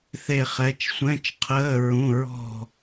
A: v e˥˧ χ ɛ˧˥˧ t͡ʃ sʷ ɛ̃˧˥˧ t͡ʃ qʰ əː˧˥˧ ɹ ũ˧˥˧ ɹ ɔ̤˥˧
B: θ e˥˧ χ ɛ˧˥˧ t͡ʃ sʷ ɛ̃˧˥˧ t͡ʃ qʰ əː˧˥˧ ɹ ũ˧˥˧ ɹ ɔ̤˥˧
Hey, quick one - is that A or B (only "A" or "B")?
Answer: B